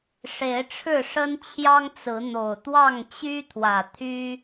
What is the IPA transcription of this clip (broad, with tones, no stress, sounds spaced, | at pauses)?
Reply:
ʂ e˨˦ ɪ̯ ʈ͡ʂʰ ɻ̩˥˨ ʂ ə˦ n t͡ɕʰ j ɑ˦ ŋ t͡s ɹ̩˨˦ n̪ o˨˩ ʊ̯ t̪ w ɑ˥˨ ŋ t͡ɕ y˦ t̪ʰ w ä˨˩ t̪ʰ y˦